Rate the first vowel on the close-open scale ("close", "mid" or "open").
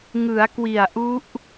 close